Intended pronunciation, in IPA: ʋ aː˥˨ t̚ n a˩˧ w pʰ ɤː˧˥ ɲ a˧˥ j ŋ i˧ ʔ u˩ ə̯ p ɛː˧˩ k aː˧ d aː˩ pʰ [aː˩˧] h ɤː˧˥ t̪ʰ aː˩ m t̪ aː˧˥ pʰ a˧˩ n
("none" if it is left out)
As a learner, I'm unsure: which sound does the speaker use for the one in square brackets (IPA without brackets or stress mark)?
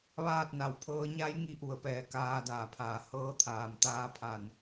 aː˩